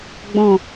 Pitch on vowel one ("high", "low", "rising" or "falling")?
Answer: low